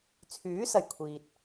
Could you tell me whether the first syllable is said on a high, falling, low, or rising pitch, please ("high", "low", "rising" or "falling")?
rising